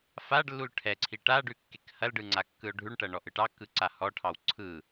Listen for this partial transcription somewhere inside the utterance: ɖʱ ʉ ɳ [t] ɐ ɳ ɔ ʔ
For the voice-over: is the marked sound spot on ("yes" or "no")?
no